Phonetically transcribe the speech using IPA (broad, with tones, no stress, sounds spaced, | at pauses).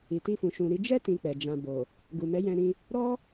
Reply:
i˨ t i˧ f ũ˨ ʃ ũ˨ ɾ i˨˦ d͡ʒ ɛ˦ t ĩ˧ k͡p ɛ˨ d͡ʒ ã˨ b o˨ | ɡ u˨ m ɛ˨˦ j ɛ̃˧ ɾ ĩ˧ | ɾ ɔ˦